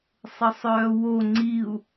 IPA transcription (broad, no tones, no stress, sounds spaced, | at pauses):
sˤ ə sˤ œː w o ŋ͡ǀ i u̯